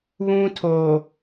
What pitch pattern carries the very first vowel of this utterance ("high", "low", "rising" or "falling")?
high